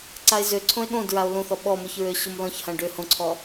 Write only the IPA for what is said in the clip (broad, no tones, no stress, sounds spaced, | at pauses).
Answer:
ǀ a e̯ z ø ǀʰ õ e̯ ɠ õ d ɹ a o̯ l õ θ ɔ ɓ ɔ m ʊ ç ɹ ø ɕ o m l ɔ̃ ç h ã ɖ ø h õ ǀʰ ɔ